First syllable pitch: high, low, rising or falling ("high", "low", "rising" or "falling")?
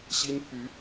high